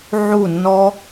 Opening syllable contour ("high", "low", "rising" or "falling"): falling